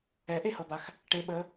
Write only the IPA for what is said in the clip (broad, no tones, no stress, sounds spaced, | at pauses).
ɛ ʔ e h ɤ b a x | ʈ e ɓ ə